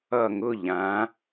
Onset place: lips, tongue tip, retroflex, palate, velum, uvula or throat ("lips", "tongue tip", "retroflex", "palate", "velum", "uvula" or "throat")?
velum